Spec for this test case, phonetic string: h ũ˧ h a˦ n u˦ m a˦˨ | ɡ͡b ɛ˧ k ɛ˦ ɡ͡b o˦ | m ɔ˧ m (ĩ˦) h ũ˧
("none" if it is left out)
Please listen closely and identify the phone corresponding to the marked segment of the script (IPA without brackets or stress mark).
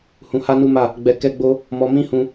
ĩ˦